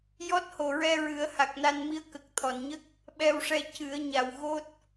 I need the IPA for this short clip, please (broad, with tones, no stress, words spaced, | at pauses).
jɔ˦˥t̚ho˨˩ɹɛ˧ɹɨ˨˩˦ə̯ ha˨˩k̚na˧nmi˧˥ə̯ kə˨˩k̚t̪ʰɔ˨˩˨nɲə˦˥k̚ | ɓɛ˧wʂɛ˧ cɨ˨˩˦ə̯ɲa˨˩wɣo˦˥t̚